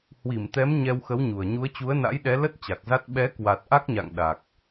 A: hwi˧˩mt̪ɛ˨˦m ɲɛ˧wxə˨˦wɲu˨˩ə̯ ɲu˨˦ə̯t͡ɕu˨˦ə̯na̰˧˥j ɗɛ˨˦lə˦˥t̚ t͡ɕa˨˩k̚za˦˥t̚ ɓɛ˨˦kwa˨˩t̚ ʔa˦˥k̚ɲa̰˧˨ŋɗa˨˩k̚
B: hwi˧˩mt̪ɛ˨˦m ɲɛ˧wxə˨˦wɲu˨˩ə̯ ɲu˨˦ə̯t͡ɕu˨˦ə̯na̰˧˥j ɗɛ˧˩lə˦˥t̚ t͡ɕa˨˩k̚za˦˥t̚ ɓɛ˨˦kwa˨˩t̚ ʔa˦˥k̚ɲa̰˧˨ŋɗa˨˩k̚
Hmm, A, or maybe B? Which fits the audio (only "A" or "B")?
A